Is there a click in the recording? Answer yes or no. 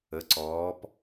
yes